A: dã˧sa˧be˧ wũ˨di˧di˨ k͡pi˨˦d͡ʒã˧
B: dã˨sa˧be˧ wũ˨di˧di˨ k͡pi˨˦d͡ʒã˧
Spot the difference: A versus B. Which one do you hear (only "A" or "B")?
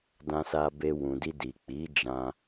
A